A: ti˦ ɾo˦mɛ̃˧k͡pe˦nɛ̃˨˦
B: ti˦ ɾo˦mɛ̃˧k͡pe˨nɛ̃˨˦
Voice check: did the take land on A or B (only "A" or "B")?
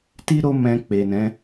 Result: B